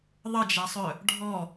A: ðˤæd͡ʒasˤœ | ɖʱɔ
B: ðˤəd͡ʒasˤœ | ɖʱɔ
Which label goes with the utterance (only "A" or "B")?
B